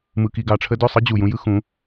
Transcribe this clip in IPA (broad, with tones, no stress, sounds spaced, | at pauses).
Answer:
m ɯ˧ k i˧ ɡ ɑ˧ ʈ͡ʂʰ ə˦ d ø˦˨ sˤ ɯ˧ d͡ʑ u˨ j ũ˧ j ɯ˦ x ũ˨˦